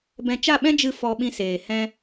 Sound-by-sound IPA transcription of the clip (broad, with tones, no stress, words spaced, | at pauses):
bɛ̃˧t͡ʃa˦˨ɓɛ̃˦ d͡ʒɨ˦˨ fɔ˧ɓĩ˧seː˨ hɛ̃˦